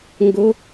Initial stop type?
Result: plain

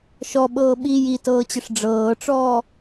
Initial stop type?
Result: implosive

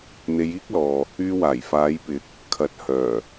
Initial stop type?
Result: plain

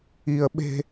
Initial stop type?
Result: implosive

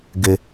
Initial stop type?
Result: plain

